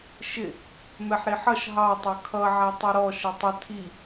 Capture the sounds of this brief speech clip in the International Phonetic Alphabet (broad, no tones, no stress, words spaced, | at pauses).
ʃɪ | mɛħɾiħʌʃ ɦɑ tˤʌkʰʌ ʕætˤʌɾɔ ʃətˤə tʰi